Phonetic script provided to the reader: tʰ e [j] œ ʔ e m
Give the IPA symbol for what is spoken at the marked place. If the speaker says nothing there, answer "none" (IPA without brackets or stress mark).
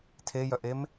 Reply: j